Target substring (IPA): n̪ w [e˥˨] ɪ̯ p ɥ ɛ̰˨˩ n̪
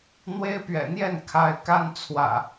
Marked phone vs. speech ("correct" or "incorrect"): incorrect